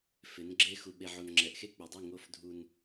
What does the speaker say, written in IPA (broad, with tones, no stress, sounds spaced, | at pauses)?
f ɪ˨˦ n ɡ͡ǁ e˦ x u˨ ɓ e˨ ʕ o˨ n ŋ͡ǁ ɛ˨ ʔ x e˦ k͡p e˨ dˤ i˦˨ ŋ o˦ f dʱ u˦ n